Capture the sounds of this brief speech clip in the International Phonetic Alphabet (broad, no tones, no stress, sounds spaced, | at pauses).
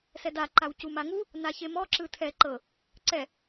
s ɛ d a ǃ a w c u m a ŋ u | n a ç e m ɔ ǁ ɯ tʰ ɛ ǃ ɤ | ǀ ɛ